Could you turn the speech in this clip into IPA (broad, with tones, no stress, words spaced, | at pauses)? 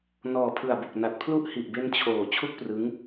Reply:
nɔː˨˩pʰɯ˨˩a̯bo˨˩k̚ na˨˩t̚pʰlu˥˩ʔ hi˨˩ʔbe˧n t͡ɕʰoː˨˩ t͡ɕʰu˥˩k̚prɯ˦˥ŋ